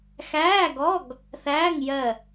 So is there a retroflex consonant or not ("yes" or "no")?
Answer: no